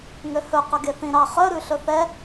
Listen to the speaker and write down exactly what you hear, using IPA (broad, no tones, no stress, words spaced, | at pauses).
ŋøhɵqœ ɡeθĩ ɾɑχœɾʉɬɵ θɛ